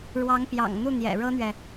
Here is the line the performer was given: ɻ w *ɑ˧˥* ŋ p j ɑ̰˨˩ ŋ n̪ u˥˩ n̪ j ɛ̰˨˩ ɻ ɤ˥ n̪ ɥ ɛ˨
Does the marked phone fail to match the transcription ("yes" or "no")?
no